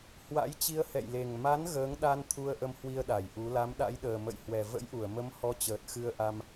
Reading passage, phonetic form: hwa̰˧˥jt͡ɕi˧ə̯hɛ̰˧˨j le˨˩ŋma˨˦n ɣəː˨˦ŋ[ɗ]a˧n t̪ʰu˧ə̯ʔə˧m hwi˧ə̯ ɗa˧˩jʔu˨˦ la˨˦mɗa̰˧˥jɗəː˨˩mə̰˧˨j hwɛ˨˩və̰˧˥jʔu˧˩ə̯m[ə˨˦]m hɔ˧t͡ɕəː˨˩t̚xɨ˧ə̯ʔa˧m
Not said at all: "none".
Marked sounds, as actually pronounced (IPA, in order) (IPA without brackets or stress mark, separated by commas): ɗ, ə˨˦